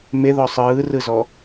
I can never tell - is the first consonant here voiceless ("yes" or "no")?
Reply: no